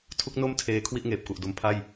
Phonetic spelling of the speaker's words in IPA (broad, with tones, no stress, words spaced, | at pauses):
tʰu˦˥k̚no˥˩m tʰeː˧ kʰwi˥˩ʔŋeː˨˩p̚ku˨˩ʔdo˧m pʰa˥˩j